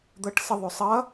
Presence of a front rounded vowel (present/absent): absent